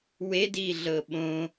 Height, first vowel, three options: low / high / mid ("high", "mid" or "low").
mid